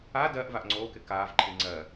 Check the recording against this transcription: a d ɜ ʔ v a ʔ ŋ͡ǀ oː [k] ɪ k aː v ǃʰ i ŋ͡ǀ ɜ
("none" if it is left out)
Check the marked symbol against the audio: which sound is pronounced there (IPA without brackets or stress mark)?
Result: k